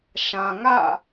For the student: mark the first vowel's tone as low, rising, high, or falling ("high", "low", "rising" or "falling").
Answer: low